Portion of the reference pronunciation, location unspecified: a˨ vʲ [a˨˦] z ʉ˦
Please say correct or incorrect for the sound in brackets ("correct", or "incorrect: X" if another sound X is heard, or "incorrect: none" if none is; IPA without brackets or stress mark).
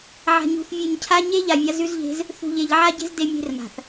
correct